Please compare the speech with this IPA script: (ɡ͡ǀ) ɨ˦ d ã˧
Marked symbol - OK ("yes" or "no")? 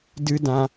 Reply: no